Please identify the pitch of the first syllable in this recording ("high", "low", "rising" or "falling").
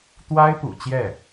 high